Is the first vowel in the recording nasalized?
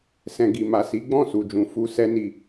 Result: yes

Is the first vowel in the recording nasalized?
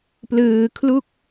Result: no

